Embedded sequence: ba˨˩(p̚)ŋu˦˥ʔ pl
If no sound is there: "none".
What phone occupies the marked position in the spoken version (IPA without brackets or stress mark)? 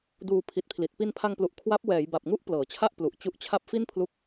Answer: p̚